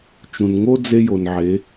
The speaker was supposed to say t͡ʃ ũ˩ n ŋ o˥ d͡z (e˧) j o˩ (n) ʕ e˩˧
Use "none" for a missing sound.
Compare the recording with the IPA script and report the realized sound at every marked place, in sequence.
e˧, n

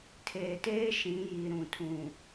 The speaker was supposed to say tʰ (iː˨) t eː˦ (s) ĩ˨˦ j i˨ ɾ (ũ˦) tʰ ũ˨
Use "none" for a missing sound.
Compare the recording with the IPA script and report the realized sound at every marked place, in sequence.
eː˨, ʃ, ũ˨

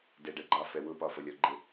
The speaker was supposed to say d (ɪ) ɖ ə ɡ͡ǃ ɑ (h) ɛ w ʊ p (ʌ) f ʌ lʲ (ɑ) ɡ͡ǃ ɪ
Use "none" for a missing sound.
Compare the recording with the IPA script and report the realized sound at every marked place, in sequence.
ɛ, f, ɒ, ɔ

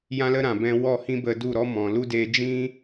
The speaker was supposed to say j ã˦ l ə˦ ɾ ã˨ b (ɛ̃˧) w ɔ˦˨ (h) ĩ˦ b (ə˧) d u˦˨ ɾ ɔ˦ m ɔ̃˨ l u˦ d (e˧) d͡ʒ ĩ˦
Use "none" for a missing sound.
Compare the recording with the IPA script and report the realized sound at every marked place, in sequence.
ɛ̃˧, h, ə˧, e˧

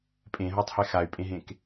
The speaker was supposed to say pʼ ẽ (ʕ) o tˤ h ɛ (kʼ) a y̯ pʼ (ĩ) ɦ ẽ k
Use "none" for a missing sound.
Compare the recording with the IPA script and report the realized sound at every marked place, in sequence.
ɦ, x, ẽ

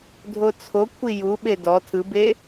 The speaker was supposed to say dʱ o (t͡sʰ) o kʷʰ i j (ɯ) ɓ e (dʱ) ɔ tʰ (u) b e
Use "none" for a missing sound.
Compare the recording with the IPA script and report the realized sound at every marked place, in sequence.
t͡sʰ, u, d, ɯ

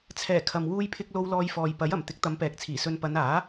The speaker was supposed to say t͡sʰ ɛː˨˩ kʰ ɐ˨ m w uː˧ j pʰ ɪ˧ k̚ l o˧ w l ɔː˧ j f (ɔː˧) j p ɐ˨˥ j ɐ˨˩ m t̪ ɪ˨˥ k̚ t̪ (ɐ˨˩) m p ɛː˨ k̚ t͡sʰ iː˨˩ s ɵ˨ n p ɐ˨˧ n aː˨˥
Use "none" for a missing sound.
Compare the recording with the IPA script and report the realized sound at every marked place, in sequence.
ɔː˨, ɐ˨˧

